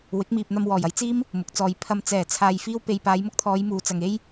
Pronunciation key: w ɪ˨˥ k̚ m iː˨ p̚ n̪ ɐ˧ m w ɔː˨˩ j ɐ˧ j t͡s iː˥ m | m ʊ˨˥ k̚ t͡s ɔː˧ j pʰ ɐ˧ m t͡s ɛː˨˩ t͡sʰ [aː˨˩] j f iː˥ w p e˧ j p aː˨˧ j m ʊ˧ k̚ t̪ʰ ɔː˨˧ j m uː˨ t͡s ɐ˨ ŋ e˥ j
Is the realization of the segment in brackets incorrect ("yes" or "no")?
yes